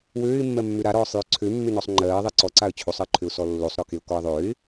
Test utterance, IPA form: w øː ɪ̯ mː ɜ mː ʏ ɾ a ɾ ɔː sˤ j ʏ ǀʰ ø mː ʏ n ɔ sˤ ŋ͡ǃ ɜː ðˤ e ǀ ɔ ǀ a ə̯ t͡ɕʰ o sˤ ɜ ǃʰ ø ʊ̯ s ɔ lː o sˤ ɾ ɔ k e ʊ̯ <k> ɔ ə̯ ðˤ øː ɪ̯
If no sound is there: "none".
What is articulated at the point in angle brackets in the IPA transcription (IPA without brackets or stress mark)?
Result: k